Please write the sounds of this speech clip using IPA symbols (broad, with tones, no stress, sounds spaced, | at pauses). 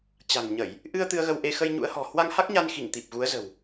t͡ɕ a̤˨˩ ŋ ɲ ə˧˩˨ j | ʔ ɨ˧ ə̯ t̪ ɨ˧ ə̯ ɣ ə˧ w ʔ e˧ x ə˧ j ɲ ṵ˧˥ ə̯ h ɔ̤˨˩ h w a˧ ŋ h a˦˥ k̚ ɲ a˧ n x i˧˩ ŋ t̪ i˨˩ p̚ ɣ u˨˦ ə̯ z ə̤˨˩ w